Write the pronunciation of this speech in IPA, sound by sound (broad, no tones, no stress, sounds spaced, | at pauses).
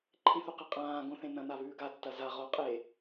ǃʰ ĩ θ u q ɨ qʼ ãː ɡ õ θ ẽ n ɐ̃ n a β ʉː ɡ a tː ɐ z a ʁ o qʼ e